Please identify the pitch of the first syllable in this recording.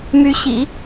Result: rising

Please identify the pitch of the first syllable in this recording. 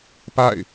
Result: falling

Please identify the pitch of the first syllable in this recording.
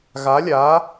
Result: rising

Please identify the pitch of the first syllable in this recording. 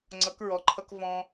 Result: rising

